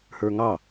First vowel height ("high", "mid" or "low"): mid